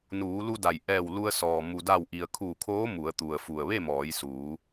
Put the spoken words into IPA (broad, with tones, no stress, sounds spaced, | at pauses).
n uː˩˧ l u˧ d a˩ j ʔ ɛː˧˩ w l u˧ ə̯ s ɔː˩ m u˩ d a˧˩ w ʔ i˩ ə̯ kʰ uː˧˩ kʰ oː˧˥ m u˩˧ ə̯ t̪ u˩ ə̯ f u˩ ə̯ ʋ e˥˨ m ɔː˩˧ j s uː˩˧